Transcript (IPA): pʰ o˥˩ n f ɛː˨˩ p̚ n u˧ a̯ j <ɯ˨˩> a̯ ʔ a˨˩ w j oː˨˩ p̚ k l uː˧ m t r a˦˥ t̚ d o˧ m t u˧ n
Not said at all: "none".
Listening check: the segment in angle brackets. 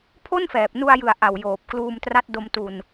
ɯ˨˩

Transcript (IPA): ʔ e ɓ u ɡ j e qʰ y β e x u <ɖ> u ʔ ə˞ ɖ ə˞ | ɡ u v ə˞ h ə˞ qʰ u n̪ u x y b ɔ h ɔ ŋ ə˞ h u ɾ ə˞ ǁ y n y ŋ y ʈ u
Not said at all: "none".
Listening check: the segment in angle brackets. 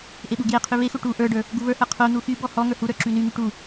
ʈ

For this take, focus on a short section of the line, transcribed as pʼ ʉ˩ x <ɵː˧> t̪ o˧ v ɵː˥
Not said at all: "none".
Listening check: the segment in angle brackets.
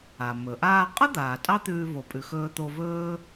ɵː˧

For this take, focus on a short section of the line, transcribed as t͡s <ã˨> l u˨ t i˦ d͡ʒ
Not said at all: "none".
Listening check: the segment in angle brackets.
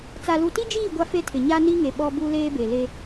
a˨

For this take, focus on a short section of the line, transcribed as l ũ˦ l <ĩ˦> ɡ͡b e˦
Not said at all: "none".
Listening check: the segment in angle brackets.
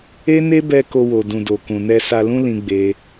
ĩ˦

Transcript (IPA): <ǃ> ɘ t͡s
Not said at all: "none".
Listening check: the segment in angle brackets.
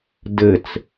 d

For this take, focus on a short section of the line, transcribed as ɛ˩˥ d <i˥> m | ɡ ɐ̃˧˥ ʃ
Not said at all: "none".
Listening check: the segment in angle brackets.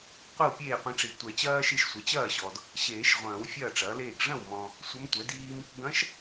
iː˥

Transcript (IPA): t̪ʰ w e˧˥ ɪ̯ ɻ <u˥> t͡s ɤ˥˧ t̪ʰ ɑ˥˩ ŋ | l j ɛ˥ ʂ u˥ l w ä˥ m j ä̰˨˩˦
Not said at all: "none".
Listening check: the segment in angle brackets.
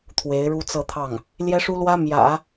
u˥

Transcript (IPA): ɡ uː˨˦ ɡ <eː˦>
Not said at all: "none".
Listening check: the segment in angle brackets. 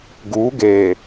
eː˨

